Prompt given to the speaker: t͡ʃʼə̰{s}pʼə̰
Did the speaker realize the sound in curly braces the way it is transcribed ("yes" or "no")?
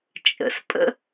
yes